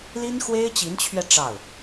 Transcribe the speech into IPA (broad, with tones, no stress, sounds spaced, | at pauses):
l i˥ n x w e˥ ɪ̯ t͡ɕ i˧˥ n t͡ɕʰ ɥ ɛ˧ ʈ͡ʂ ɑ˥˩ ʊ̯